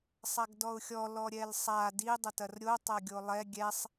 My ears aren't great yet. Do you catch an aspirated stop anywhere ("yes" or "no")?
no